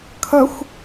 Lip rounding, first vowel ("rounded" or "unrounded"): unrounded